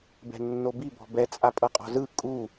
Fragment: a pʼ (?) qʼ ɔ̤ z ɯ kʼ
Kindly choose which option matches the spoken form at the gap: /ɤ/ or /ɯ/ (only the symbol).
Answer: ɤ